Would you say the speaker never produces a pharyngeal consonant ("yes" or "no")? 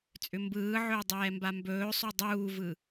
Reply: no